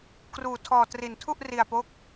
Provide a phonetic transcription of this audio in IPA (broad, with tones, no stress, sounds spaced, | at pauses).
k r uː˧ tʰ ɔː˧ t r i˧ n tʰ u˥˩ ʔ r i˧ a̯ p o˥˩ k̚